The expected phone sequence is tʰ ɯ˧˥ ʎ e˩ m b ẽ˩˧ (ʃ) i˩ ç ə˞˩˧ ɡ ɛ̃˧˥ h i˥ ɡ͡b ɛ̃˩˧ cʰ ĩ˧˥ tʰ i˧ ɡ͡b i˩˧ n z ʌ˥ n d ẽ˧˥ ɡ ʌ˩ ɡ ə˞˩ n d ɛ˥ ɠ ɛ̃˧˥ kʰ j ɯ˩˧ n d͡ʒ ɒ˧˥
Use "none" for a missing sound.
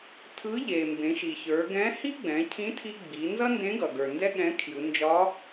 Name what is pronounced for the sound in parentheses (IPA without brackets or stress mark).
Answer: ʃ